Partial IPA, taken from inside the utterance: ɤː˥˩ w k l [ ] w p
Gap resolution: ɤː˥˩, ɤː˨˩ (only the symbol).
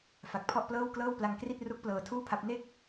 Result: ɤː˥˩